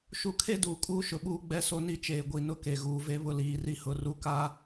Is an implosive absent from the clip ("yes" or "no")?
no